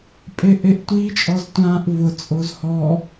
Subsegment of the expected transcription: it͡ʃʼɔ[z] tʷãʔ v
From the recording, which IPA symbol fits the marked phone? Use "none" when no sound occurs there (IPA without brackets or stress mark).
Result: z